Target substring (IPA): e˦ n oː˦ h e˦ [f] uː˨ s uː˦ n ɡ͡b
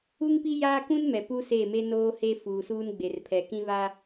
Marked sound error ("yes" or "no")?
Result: no